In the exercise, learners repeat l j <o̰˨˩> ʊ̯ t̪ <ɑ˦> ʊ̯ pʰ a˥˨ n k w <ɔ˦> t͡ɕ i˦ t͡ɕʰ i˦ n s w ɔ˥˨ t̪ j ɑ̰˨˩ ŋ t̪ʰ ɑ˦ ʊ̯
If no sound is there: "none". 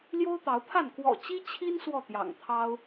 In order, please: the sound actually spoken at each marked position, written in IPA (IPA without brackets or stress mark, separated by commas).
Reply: o˦, ɑ˨˦, ɔ̰˨˩